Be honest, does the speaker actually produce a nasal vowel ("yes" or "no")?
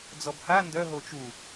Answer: no